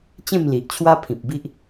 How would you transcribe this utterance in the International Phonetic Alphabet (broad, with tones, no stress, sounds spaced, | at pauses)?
t͡ɕ ẽ˥˧ m l i˨ ʔ t͡ɕʰ w a˦ pʰ ĩ˨ p̚ b i˦ ʔ